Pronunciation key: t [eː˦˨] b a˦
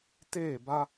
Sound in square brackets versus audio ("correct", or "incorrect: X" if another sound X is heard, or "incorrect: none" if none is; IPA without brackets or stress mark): correct